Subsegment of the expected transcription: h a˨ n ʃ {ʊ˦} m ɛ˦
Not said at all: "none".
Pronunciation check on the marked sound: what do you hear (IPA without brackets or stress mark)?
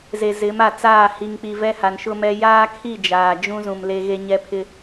ʊ˦